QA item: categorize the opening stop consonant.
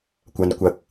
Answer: plain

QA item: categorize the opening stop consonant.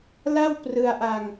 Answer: plain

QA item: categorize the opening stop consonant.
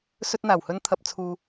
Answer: plain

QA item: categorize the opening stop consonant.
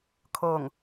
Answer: aspirated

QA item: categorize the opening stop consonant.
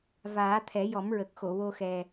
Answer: aspirated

